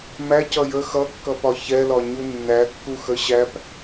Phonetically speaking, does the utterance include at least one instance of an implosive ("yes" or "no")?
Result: no